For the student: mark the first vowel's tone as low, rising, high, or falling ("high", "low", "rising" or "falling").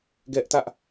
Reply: high